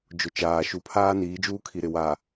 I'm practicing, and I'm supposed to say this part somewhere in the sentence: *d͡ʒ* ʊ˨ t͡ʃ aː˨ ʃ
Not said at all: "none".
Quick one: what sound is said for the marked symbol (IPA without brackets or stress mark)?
d͡ʒ